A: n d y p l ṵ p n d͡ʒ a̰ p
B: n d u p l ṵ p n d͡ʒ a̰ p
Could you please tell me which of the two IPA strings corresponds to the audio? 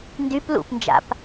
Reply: A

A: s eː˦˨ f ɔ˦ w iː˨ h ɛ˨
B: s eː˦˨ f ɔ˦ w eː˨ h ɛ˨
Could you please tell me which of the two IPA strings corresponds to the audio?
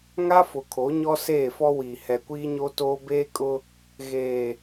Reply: A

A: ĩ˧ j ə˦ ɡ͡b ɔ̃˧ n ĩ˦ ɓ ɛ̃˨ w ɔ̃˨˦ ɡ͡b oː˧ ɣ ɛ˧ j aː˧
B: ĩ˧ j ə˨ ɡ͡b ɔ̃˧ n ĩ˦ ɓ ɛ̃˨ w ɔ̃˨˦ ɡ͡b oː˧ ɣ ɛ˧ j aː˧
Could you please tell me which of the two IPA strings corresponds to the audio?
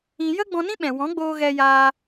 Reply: A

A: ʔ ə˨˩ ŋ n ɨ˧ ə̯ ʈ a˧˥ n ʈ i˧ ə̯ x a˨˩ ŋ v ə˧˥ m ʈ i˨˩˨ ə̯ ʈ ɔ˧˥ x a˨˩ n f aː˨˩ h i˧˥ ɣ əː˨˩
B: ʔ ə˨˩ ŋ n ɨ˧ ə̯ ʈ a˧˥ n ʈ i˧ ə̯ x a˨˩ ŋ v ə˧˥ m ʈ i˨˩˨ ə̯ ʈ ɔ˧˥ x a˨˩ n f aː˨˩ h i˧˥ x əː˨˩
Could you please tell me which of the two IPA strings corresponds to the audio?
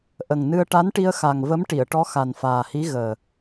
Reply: A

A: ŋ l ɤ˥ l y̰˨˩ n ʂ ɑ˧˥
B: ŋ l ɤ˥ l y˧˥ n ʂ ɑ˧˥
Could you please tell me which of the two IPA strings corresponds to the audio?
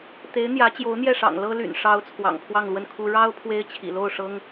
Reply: A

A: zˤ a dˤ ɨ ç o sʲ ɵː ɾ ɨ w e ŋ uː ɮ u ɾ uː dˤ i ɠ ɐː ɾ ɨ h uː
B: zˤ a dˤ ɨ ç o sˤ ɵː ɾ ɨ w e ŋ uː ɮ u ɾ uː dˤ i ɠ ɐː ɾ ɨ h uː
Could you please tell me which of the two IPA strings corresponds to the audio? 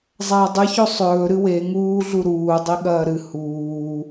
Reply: B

